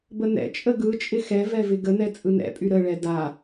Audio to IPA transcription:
b ə n ɛ̰ t͡ʃʼ ə ɡ ɯ t͡ʃʼ ɪ x ɛ v ɛ v ɪ ɡ ə n ɛ t͡sʼ ɯ n ɛ̰ pʼ y ɾ ə ɭ ɛ d a

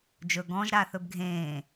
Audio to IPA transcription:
d͡ʒ ɵ ɡ ɔ̃ ʒ ɾ aː θ ɵ b ɡʱ ẽː

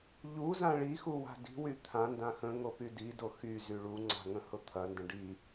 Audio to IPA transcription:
ʎ u z ã ɭ i x u w a̤ d i̤ w y t̪ʰ ã n d ã x ə̃ ŋ o p y d i d o x y z y ɭ u ŋ͡ǀ a̤ ŋ ə̃ h ʊ t̪ʰ ɐ n d ə̃ ɖ i

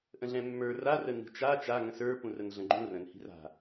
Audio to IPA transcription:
ʔ ə̃ ɮ ɛ̃ mː ə˞ r a r ə n i̤ t͡ʃ a t͡ʃ a ŋ ə̃ s ə˞ p ũ r ə n ɮ ə̃ ɡ͡ǃ ũ r ə̃ n h i̤ r a̤

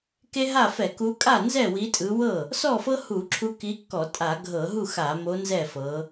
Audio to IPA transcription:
k e˦ ɦ a˥˩ f ɛ˧˩˧ k u˨˦ kʼ a˥˩ n z ɛ˥˩ w i˨˦ tʼ ɯ˨˦ w ɤ˥˩ | s ɔ˥˩ f ɤ˦ h u˧˩˧ ǁʰ u˨˦ k i˨˦ kː ɔ˧˩˧ tʼ a˧˩˧ ɡʱ ɤ˧˩˧ ɦ u˥˩ x a˧˩˧ m o˨˦ n z ɛ˥˩ f ɤ˨˦

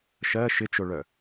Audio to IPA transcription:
ʃ ɜ ʃ ɪ t͡ʃ o ɭ œ

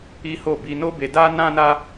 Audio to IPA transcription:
i˦ h o˦˨ b i˧ n o˦ b e˧ d a˦ n ã˦ n a˦

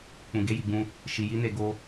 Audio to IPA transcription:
k͡p ũ˨ ɡ e˨˦ j i˦˨ ɡ͡b ũ˧ | ʃ i˨ j i˨˦ n e˦˨ ɡ o˧

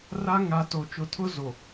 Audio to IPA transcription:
r a˦ ŋ a˨˦ t o˨ t͡ʃ ʊ˨ tʰ ʊ˦ z o˨

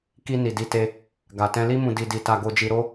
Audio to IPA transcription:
k i˧ n i˨ d i˧ t e˧ | ɡ a˨ t ɛ̃˧ l i˦ m ũ˧ d i˧ d i˧ t a˧ ɡ o˧ d͡ʒ i˧ ɾ o˦

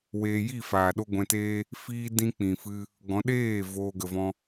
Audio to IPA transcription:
w eː˧ j i˦˨ f aː˨ ɗ o˦ ɡʷ ɛ̃˧ t eː˦ | f iː˦ d ĩ˦ k͡p ĩ˨ f ɨ˧ | ɡ ɔ̃˨˦ ɗ eː˦˨ v oː˧ ɡ ə˨ v ɔ̃˧

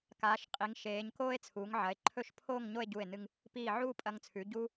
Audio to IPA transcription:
k aː˩˧ ʃ qʼ i˩˧ ŋ ʃ eː˩˧ ɲ k oː˥ e̯ t͡sʰ uː˩˧ ŋ ʕ ɐ˩˧ e̯ ǃʰ ɵ˥˧ ʃ pʰ oː˥˧ ŋ ɲ o˥˧ e̯ ɟ u˧˩ e̯ n ɨ˧ ŋ | p iː˧˩ ʕ uː˥˧ pʼ ɐ˧ ŋ t͡sʰ ʉ˩˧ ɟ uː˥

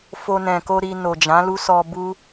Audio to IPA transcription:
f o˧ n ɛ̃˨ k o˧ ɾ i˧ n o˨ d͡ʒ ã˨˦ l u˦ s ɔ˧ b u˦

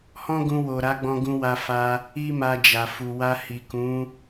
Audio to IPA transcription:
h ɔ̃˦ ɡ ũ˧ w o˨ ɾ a˨˦ ɡ͡b ɔ̃˧ ɡ ũ˧ w a˧ f a˧ | i˦ m a˧ d͡ʒ a˨ f u˨ w a˧ h i˨ k ũ˨˦

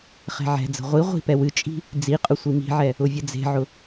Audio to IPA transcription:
χ ɛ̤ ʕ ɛ̤ d͡z ə̤ ʁʷ i ʁʷ i̤ p ɛ w ɨ t͡ʃʼ i̤ | d͡z i qʼ ʊ sʷ i m i̤ ʕ ɛ | ʊ vʲ ə d͡z e̤ ʕ ʊ

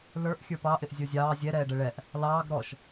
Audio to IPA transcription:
l ə˞ ʔ xʲ ə˞ p ɑ ʔ ɪ ʔ zʲ ə˞ zʲ ɑː zʲ ɛ ɾ ɛː ɖ ə ɭ ɛ ʔ | l ɑː ɡ ɾ ɔ ʃ

